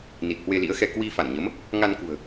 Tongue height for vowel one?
high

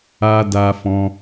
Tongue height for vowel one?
low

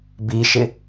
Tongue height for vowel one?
high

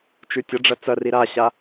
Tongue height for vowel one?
high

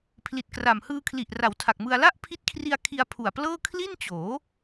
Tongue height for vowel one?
high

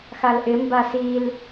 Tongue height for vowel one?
low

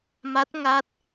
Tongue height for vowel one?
low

